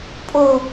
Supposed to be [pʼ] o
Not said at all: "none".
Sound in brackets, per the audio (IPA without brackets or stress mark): pʼ